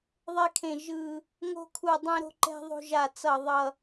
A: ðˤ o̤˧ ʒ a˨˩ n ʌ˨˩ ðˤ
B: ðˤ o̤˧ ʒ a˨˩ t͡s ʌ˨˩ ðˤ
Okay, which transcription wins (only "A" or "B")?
B